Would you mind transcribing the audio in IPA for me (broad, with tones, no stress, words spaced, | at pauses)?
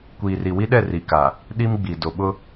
kʷiː˨ri˨wi˦ɗɛ˦˨ ri˨ka˨ | ɗi˦mɡ͡bi˨ do˨ɓʊ˦